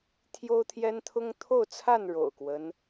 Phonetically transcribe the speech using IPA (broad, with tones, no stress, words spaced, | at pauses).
t̪ʰjo˦ʊ̯t̪ʰjɛ˦n t̪ʰʊ˦ŋt̪ʰo˥˨ʊ̯t͡sʰa˥˨n ɻo̰˨˩ʊ̯kwə˦n